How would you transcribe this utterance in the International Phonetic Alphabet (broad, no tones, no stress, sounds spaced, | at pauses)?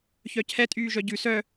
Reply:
ç œ cʰ ɛ tʼ yː ʒ œ ɟ ʉ s œ